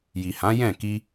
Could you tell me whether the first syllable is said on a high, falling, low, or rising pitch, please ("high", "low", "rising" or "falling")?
low